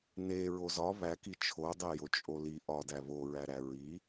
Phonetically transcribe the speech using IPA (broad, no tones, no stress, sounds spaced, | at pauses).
n e ɹ o z ɒ β æ k i t͡ʃʰ o dˤ e j o t͡ʃʼ o l i ʔ ɒ d æ β o ɹ æ ɾ æ ɹ i